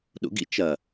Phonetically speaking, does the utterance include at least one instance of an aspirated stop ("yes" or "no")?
no